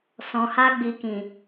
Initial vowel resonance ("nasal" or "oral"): nasal